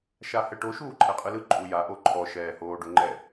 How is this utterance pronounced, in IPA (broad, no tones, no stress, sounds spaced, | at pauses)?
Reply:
ʃ a h ɛ ʈ o ʃ uː ǃʰ ɛ qʼ ɯ l ɯ ǃʼ u j a ʔ o ǃʰ ɔ ʃ ɛː h oː ɖ o ŋ͡ǃ ɛ